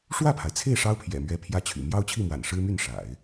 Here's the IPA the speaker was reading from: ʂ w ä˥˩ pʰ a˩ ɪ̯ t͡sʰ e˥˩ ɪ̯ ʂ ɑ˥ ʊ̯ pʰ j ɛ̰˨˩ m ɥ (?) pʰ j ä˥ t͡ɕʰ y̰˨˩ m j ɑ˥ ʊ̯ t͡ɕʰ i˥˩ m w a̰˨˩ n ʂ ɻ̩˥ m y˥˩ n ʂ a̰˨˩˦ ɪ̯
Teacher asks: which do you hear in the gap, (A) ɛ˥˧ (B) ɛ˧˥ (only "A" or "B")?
B